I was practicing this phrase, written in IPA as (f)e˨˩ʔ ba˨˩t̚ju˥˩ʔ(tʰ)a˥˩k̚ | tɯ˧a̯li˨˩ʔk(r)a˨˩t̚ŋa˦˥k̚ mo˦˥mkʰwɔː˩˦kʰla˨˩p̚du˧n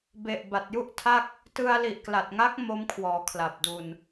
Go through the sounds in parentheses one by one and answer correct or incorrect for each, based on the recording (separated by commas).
incorrect, correct, incorrect